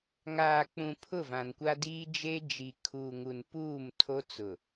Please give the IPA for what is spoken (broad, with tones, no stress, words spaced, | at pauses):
ŋaː˨k͡pũ˨ pʰʊ˦˨vã˨nkʷa˦diː˦ d͡ʒe˦ d͡ʒi˨kʰuː˨ŋu˨n puː˦˨m tʰo˦t͡sʊ˨